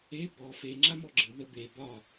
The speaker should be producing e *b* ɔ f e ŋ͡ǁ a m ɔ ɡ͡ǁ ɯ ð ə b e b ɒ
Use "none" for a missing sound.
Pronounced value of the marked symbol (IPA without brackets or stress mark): b